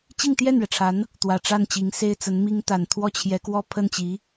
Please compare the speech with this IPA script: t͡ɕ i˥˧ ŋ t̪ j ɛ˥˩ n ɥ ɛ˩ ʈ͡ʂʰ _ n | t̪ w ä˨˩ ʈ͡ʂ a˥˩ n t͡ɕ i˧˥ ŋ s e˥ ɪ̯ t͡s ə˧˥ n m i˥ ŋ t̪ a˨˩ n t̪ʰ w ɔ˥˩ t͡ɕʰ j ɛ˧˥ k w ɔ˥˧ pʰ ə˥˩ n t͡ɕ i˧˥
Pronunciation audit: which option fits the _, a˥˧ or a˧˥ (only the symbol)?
a˧˥